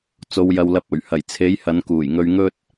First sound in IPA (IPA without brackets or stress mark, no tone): t͡s